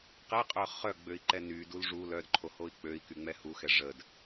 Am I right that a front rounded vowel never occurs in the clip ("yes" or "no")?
no